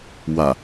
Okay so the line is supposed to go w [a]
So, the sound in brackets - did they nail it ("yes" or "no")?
yes